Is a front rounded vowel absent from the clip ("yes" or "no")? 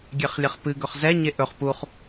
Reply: yes